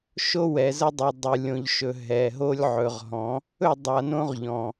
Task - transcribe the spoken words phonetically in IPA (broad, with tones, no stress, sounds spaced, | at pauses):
ʃ o˦ w ɛ˨ z ə˦ dˤ o˨ dˤ ɨ˨ lʲ õ˨ ʎ ʃ ɵ˨ ɦ ɛ˨ ɦ o˦ lʲ ʕ ɵ˨ ʁ ɦ ɔ̃˨˦ | ɵ˦˨ dˤ a˨ n õ˦ ʁ ʎ ɔ̃˨